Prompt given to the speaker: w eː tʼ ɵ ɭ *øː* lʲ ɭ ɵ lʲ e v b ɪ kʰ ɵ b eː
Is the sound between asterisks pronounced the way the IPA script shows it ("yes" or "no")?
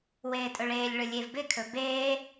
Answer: no